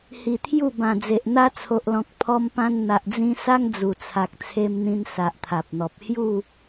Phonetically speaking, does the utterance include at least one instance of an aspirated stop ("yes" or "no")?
yes